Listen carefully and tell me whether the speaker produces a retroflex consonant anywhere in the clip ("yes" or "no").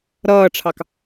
yes